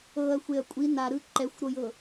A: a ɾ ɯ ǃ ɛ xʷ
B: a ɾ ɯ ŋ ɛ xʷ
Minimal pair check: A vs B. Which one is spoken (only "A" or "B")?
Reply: A